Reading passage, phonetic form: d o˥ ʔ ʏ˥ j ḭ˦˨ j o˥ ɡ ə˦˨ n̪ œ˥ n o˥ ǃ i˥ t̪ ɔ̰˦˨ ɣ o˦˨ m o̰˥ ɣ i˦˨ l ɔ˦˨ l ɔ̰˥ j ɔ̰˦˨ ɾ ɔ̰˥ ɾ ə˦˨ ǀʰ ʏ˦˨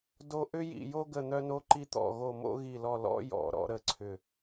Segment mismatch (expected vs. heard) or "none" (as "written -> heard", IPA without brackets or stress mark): none